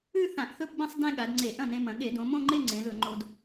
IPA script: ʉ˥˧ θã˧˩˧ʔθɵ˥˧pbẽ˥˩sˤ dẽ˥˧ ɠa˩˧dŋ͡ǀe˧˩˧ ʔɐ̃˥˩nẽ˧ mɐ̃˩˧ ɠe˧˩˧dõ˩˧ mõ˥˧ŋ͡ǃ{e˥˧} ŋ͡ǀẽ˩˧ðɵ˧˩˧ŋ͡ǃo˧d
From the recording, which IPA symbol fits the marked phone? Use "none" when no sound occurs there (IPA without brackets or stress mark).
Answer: e˥˧